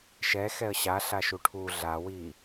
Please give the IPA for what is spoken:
ʃ ɛ x ɛ ə̯ ɕ a ɬ a ʃ u ʈʰ u ɮ a w i

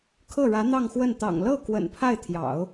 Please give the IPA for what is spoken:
kʰ ɤ˥˩ ɻ ä˧˥ n̪ ɑ˥˧ ŋ x w ə˥˩ n t̪ ɑ̰˨˩ ŋ l ɤ˥˩ k w ə̰˨˩ n pʰ a˥˩ ɪ̯ t̪ʰ j ɑ̰˨˩˦ ʊ̯

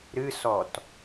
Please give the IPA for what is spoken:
ɾ ɨ s ɔ t

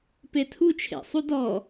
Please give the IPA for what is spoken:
p e tʰ u t͡ʃʰ ḛ sˤ u d ɔ

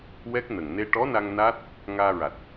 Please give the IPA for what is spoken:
w ɛ˦˥ k̚ n ə˨˩ ŋ n e˧ ʈ ɔ˧˥ n a˧ ŋ n a˦˥ t̚ | ŋ aː˧ ɹ a˨˩ t̚

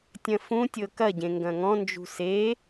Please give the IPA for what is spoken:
tʲ ɐ̃ f ũ tʲ ɤ k ɐ ɟ ẽ ŋ ɡ ɐ̃ ŋ ɔ̃ n d͡ʒ ṳ s e

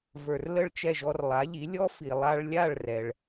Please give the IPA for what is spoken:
v ə˞˩ r l ə˥˩ ɭ t͡ʃ ɛ˥˩ ʒ ɔ˧ r lˠ a˩˥ ʎ i˩˥ lʲ ɔ˥ f i˩ lˠ a˧ ɭ lʲ a˥˩ ɭ r ɛ˩ ɭ

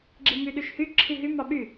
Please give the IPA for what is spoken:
ɡ͡ǁ i m y ɗ y ʃ h y ǁʰ i ɦ y m ɑ ɓ y

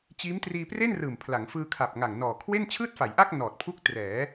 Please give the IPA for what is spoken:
t͡ɕ iː˦˥ m t r iː˧ p r e˥˩ n r ɯː˨˩ m pʰ l a˩˦ ŋ f ɯː˧ kʰ a˨˩ p̚ ŋ a˨˩ ŋ n ɔː˨˩ kʰ w e˥˩ n t͡ɕʰ ɯː˥˩ t̚ f a˩˦ j ʔ a˥˩ k̚ n ɔː˨˩ t̚ pʰ u˦˥ k̚ t r ɛː˩˦

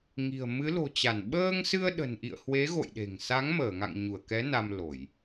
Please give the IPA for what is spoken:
ŋ i̤˨˩ ə̯ m ɨ˨˦ l o̤˨˩ t͡ɕ a˧˩ n ɓ əː˧ ŋ s ɨ˧ ə̯ ɗ ə̤˨˩ n ʔ ḭ˧˨ ə̯ h w e˨˦ ɣ o̰˧˨ j ɗ e̤˨˩ ŋ s a˨˦ ŋ m əː˧˩ ŋ a̰˧˨ ŋ ɲ u˧˩ ə̯ k ɛ˨˦ n a˧ m l o˧˩˨ j

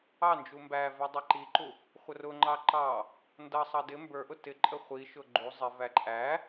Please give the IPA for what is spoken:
ɑ n d͡ʒ u m b æ v ɛ dˤ i ǃ i ǃ u | χʷ ə r ʊ ŋ͡ǃ ɑ ǃ ɑ | n d ʌ sˤ ɑ d ɪ m b ə˞ ʔ ʊ t ɪ ǃʼ ə χʷ i ʃ ʊ ɡ͡ǃ u zˤ ɪ v æ ǃʼ æ

